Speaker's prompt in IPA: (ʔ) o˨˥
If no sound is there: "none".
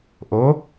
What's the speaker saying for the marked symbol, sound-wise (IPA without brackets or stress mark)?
ʔ